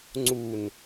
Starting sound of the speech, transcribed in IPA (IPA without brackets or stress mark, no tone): ŋ͡ǀ